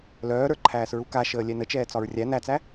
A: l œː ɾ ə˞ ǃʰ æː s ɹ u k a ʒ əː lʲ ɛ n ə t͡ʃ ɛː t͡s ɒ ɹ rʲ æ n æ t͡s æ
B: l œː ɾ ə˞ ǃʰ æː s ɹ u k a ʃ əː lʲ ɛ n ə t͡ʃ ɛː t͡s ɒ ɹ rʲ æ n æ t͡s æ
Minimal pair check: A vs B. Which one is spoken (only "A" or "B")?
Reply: B